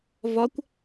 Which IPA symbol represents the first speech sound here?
v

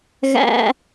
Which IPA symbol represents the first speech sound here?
ɣ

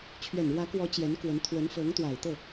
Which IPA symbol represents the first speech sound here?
t͡ɕʰ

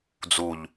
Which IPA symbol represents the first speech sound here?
d͡z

